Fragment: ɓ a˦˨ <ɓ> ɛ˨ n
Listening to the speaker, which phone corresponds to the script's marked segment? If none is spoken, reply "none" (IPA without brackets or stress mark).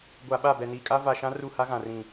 b